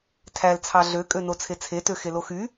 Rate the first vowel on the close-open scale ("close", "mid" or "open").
open